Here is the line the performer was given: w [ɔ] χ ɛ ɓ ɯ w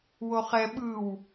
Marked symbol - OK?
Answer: no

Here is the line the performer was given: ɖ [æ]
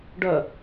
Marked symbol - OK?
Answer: no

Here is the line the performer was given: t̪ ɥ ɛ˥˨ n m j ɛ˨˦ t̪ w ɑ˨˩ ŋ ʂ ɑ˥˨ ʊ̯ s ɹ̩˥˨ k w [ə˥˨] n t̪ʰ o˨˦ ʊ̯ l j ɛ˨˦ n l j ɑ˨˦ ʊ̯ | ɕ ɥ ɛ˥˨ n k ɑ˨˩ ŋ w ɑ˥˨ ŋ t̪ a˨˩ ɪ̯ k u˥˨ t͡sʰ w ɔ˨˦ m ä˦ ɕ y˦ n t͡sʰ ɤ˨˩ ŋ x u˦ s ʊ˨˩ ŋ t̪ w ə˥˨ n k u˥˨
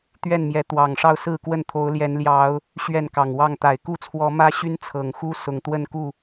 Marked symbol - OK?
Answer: yes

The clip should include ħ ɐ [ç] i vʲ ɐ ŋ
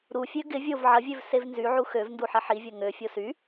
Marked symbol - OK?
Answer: no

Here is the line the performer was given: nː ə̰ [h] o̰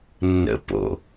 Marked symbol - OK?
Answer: no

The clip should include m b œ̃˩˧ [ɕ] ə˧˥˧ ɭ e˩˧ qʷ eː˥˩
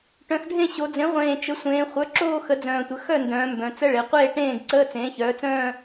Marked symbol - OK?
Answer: no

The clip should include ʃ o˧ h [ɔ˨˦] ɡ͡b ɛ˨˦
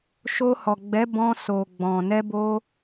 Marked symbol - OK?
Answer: no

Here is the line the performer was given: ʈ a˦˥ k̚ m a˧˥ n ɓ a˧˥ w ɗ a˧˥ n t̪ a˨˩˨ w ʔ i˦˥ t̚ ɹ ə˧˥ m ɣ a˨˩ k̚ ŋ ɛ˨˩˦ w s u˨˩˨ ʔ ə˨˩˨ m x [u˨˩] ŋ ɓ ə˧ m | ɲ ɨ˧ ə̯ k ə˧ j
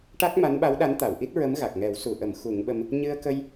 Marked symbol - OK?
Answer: no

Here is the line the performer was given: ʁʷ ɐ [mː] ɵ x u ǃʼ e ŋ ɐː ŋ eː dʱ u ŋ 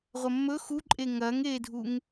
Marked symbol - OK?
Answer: yes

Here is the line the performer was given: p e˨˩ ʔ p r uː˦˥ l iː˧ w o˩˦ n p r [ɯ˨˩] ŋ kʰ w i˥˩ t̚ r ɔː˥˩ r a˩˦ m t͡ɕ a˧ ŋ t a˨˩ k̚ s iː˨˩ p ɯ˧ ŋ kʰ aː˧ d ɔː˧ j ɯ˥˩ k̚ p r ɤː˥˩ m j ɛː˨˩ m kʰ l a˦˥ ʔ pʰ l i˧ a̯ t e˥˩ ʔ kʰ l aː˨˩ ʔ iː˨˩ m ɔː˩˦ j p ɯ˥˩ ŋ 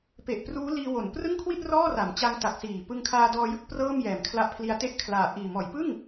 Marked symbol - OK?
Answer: no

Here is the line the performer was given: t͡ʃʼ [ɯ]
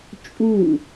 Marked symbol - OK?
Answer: no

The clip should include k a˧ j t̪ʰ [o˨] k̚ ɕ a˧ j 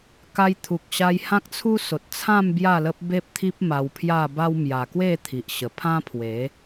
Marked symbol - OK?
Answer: no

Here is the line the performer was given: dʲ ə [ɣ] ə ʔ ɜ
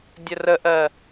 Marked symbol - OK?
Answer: no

